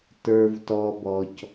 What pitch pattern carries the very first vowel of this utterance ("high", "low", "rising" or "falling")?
low